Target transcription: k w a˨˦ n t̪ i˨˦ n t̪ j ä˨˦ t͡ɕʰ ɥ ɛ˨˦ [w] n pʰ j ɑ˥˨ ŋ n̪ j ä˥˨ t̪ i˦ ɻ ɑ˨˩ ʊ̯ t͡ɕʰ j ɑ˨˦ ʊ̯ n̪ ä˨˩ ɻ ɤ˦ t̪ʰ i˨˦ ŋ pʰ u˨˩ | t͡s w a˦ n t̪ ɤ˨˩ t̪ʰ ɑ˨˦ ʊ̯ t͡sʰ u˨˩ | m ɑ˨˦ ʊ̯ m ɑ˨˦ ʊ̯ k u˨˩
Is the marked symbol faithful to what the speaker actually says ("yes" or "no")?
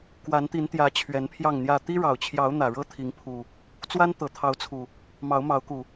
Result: no